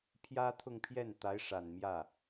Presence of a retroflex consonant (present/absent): present